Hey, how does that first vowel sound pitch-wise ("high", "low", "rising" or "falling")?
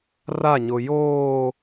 falling